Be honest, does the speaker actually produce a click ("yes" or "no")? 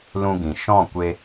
no